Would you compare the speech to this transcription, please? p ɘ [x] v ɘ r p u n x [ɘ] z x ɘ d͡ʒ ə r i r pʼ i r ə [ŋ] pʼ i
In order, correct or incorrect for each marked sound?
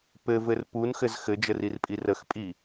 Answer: incorrect: none, correct, incorrect: x

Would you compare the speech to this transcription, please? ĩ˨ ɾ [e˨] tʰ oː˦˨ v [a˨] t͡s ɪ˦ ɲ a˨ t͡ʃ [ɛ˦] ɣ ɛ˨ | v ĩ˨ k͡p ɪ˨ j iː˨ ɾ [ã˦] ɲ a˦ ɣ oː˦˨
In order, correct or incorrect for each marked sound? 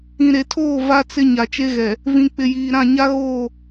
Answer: correct, incorrect: a˦, incorrect: e˦, incorrect: ã˦˨

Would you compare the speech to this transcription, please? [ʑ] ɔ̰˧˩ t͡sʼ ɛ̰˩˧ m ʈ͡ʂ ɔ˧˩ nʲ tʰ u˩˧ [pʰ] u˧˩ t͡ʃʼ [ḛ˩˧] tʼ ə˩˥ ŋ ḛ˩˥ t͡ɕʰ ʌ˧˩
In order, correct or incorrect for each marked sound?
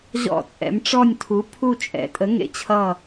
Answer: correct, correct, incorrect: ɛ̰˩˧

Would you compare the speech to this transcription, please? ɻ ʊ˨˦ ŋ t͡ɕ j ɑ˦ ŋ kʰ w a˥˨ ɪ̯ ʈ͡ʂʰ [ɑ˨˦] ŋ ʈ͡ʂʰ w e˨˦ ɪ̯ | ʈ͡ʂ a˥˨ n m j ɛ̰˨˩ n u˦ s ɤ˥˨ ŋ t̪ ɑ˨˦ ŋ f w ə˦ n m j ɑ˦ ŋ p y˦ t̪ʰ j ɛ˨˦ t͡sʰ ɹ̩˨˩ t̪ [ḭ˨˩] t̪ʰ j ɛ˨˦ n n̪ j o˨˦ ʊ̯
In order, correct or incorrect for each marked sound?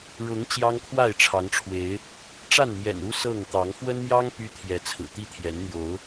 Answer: correct, incorrect: i˦

